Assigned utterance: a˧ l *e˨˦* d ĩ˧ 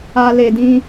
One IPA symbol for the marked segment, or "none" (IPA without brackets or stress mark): e˨